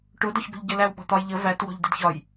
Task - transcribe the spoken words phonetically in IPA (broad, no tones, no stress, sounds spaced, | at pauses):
ʈ ʊ d ɒ ç b ə̤ ʎ ɟ ə l æ w ɓ ɔ̤ t̪ ɒ j ʎ ə v æ t w ɔ̤ ʎ d ə d ç ɒ j